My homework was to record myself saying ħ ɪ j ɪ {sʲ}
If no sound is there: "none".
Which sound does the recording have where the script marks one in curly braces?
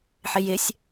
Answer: sʲ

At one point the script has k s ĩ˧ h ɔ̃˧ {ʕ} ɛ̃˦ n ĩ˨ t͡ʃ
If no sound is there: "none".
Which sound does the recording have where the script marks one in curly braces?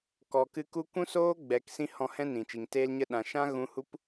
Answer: h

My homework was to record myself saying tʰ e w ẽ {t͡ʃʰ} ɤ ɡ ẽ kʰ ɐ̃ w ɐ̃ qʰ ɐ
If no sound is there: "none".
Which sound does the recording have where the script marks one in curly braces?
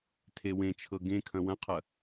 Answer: t͡ʃʰ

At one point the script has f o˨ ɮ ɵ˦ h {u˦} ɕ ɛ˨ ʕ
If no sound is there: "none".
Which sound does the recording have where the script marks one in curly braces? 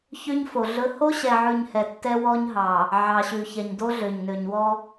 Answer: o˦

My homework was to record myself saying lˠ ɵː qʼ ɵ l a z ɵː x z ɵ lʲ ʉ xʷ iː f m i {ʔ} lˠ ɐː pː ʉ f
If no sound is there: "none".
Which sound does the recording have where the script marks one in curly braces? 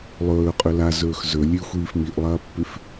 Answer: ʔ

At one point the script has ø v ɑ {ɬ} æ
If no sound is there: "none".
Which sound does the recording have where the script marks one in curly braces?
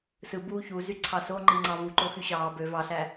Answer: ɬ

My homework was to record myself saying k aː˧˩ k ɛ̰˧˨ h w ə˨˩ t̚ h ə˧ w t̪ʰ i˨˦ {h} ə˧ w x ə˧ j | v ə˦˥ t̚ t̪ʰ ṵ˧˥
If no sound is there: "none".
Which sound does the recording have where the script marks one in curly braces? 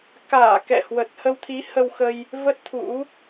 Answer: h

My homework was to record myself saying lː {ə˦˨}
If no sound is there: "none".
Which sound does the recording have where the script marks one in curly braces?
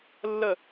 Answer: ə˦˨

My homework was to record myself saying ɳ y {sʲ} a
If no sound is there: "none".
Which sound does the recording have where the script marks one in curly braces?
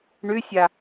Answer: sʲ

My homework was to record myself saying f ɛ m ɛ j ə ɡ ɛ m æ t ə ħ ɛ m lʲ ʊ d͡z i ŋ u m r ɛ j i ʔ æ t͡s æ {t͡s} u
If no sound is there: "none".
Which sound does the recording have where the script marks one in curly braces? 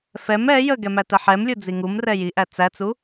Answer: t͡s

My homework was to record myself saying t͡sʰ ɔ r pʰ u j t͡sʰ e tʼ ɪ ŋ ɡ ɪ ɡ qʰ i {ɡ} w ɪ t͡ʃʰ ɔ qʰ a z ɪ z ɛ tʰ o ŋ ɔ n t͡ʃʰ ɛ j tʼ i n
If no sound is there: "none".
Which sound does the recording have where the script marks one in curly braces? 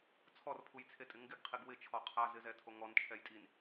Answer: ɡ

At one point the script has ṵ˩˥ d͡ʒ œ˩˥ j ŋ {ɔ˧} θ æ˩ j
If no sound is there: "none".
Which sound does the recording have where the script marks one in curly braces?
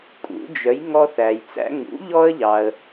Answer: ɔ˧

